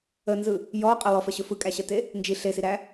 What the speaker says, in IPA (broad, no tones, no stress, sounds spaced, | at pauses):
ə n z ɯ | j ɔ qʼ ə w ɔ f ə ɕ ɵ f ɯ kʼ æ ɕ ə t e | n d͡ʒ i ɬ e s i ɾ æ